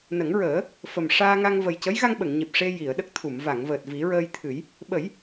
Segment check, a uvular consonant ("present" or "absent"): absent